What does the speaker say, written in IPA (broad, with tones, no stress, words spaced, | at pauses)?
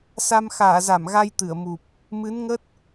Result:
sa˧m xaː˧˩za˧˩m ɣa˧jt̪ɨ˧˩ə̯mu˨˩p̚ | mɨ˨˦nŋə˦˥t̚